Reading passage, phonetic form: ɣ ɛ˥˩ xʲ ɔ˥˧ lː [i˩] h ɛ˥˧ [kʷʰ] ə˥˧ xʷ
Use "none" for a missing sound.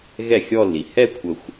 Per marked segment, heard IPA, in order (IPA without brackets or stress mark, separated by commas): i˩, kʷʰ